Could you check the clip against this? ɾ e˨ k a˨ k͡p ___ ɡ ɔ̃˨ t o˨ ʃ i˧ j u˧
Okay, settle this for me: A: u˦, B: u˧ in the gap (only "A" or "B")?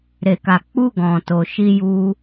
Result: B